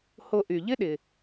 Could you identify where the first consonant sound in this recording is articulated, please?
glottal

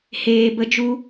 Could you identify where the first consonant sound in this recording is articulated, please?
glottal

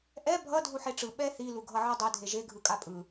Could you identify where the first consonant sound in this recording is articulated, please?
glottal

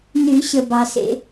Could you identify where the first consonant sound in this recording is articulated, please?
alveolar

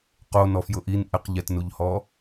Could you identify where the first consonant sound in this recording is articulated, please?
uvular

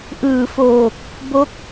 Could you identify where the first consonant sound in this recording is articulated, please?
glottal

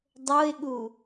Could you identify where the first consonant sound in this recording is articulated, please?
alveolar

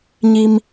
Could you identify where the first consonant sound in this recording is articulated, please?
palatal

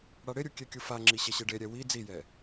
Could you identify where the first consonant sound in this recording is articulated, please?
retroflex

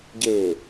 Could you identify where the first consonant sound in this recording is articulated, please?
palatal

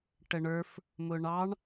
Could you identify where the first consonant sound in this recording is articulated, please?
retroflex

